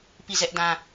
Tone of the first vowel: falling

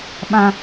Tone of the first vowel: high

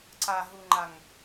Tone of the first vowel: low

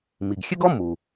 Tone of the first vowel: low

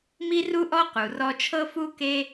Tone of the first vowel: high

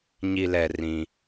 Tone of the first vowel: low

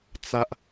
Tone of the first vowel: high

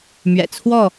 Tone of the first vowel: low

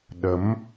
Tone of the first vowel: rising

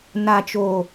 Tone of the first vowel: low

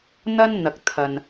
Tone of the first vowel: high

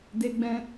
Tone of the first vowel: high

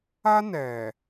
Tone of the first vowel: high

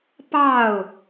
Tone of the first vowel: falling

